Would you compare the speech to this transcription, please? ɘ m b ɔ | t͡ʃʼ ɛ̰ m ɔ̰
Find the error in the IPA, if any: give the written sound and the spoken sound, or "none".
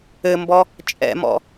none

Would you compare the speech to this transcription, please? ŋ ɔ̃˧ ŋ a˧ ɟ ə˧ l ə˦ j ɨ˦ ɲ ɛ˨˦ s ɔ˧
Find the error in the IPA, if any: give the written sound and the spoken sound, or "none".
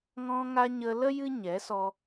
ɟ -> ɲ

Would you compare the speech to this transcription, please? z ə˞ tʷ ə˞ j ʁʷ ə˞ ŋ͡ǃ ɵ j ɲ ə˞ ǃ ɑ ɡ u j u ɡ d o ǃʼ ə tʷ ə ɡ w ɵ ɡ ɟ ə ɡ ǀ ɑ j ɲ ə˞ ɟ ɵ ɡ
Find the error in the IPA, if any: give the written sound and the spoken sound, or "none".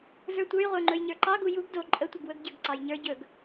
none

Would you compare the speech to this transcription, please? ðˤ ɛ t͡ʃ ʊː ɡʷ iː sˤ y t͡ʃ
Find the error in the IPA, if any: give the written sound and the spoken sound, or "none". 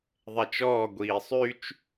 ʊː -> ɔː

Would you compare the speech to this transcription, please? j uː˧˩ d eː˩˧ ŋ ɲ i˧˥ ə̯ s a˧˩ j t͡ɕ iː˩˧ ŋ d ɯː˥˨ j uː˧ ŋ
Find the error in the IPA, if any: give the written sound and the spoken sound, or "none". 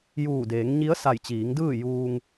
none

